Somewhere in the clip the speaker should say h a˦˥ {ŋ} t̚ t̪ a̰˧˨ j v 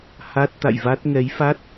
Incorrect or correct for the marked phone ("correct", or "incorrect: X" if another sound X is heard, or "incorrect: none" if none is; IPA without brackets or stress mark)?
incorrect: none